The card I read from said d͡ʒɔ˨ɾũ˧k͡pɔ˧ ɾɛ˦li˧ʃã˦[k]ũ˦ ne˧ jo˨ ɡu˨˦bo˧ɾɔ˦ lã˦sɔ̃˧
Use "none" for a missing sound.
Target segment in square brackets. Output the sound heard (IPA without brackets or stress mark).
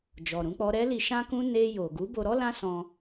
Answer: k